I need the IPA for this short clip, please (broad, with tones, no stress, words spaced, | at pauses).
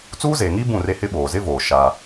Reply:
t͡suː˦ze˨ŋiː˦ bũ˦˨re˦hɪ˦ ɓoː˨ zɪ˦voː˨ ʃa˦